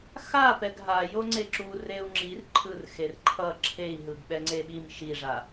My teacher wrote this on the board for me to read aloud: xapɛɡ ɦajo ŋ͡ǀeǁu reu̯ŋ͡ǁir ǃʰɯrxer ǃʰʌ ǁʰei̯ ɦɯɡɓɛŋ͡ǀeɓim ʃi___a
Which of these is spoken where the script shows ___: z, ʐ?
ʐ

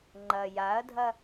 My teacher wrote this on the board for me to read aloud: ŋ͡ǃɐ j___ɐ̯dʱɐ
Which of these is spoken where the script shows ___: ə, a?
a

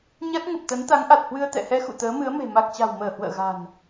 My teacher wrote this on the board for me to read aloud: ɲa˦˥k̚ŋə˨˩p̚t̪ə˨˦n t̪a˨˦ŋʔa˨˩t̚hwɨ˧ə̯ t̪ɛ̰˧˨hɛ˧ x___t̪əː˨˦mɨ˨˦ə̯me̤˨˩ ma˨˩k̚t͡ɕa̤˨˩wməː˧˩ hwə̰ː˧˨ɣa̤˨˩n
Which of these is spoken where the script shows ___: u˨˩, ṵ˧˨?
ṵ˧˨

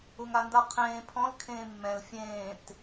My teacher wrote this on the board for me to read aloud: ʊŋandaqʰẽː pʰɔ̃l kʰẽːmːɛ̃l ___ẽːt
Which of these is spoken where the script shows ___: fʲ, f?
fʲ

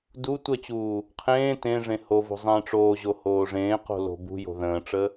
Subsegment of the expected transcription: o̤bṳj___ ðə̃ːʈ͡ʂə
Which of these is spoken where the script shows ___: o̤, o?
o̤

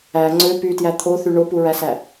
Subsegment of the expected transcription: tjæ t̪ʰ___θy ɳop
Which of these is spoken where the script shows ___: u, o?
o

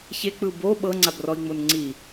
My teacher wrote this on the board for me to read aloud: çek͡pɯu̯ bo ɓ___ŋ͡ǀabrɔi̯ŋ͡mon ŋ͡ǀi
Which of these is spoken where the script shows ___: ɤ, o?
ɤ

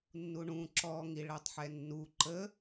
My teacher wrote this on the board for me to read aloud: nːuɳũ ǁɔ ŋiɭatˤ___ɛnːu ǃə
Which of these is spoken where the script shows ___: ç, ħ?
ħ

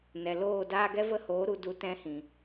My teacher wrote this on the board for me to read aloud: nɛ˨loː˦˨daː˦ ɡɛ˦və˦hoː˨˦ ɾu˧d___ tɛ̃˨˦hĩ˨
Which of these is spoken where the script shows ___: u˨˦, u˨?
u˨˦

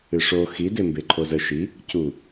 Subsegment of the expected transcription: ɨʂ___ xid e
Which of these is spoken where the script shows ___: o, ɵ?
o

